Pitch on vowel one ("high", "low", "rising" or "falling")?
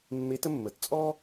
rising